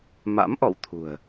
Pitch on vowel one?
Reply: rising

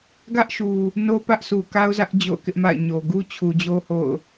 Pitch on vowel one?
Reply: high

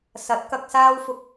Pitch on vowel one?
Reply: rising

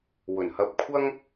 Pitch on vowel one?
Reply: low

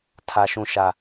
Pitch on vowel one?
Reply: low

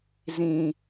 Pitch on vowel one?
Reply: low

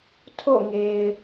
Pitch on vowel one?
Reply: falling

